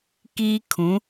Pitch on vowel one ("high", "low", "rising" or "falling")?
high